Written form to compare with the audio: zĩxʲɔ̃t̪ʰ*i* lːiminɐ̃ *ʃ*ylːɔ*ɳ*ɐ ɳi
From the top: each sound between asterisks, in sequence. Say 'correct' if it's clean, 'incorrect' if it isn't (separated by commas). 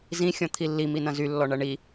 correct, incorrect, correct